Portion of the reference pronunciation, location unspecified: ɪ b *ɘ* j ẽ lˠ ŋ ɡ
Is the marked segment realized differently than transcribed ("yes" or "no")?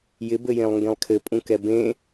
no